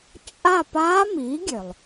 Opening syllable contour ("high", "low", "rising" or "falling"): falling